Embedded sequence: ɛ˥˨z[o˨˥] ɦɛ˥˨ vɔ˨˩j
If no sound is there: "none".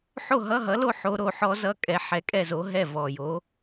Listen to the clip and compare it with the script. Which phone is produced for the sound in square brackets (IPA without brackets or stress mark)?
o˨˥